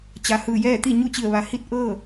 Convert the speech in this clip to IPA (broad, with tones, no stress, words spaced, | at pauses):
t͡ɕa˩hɯː˧˩jɛː˥˨ t̪i˥˨ɲu˥˨t͡ɕi˧˩ə̯ ʋa˩ hi˥˨t̚ ʔɤː˥˨